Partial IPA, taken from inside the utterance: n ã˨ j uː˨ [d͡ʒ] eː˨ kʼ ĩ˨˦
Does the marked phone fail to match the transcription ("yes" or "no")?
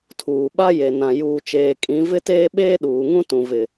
yes